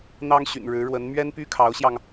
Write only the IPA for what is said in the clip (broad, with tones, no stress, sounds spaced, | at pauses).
n̪ ɑ˥ ŋ ɕ y̰˨˩ n ɻ ɻ̩˧˥ ɻ w ə˧˥ n m ɥ ɛ˥ n p y˥ kʰ ɑ˧˥ ʊ̯ ɕ j ɑ˧ ŋ